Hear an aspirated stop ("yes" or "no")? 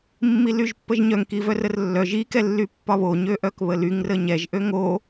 no